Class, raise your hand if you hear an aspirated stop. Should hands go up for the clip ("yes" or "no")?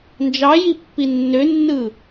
no